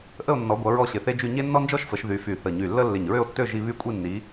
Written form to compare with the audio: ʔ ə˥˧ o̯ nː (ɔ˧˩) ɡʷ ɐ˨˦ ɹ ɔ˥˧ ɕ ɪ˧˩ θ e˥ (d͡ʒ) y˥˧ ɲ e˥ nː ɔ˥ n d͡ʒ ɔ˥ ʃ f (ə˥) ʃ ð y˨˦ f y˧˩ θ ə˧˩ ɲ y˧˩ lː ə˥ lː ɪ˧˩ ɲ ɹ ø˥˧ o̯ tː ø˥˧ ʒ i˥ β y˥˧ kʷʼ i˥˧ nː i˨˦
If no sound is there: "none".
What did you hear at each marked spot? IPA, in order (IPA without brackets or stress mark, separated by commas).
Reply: ɔ˨˦, d͡ʒ, ə˨˦